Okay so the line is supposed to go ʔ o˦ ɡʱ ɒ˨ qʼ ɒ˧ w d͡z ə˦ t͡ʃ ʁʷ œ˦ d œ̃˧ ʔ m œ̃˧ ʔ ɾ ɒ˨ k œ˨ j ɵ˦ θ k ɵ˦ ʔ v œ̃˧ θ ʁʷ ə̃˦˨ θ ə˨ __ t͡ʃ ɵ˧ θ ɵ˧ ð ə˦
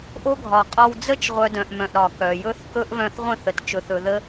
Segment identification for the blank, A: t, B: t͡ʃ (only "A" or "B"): A